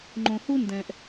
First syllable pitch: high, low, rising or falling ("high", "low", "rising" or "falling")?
low